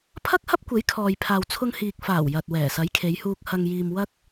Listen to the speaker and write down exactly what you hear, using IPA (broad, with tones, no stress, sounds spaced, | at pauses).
pʰ ɐ˥ k̚ h ɐ˥ p̚ kʷ e˨˥ j kʰ ɔː˨ j pʰ aː˨ w t͡sʰ ʊ˧ ŋ h iː˨ k̚ f aː˨˩ w j ɐ˨ t̚ w ɛː˨˩ s ɐ˨˥ j kʰ e˨˧ j h uː˧ k̚ h ɐ˧ ŋ j iː˧ m w ɐ˥ k̚